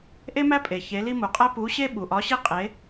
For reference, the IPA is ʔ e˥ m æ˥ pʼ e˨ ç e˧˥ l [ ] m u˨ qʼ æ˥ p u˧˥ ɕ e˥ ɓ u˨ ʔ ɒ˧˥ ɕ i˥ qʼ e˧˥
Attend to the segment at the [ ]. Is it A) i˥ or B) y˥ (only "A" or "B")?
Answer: A